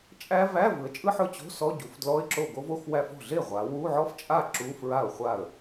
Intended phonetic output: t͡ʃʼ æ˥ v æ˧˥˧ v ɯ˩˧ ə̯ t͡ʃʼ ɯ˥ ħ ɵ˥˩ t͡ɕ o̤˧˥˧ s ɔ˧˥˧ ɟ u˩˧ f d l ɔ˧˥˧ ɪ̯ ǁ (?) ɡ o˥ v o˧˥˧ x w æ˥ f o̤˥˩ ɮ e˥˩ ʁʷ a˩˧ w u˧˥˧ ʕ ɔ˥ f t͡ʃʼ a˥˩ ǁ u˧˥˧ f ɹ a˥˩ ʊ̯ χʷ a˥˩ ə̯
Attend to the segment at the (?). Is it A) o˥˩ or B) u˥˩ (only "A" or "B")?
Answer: A